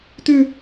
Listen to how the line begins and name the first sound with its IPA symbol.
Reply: t̪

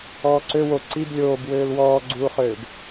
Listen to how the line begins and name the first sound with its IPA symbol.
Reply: ɔː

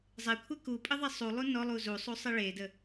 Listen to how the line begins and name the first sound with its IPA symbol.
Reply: zˤ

